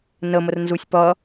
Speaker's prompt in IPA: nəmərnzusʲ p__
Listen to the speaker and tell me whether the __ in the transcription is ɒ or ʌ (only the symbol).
ʌ